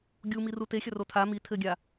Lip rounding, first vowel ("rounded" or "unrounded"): rounded